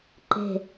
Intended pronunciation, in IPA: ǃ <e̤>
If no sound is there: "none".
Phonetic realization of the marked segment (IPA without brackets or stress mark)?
e̤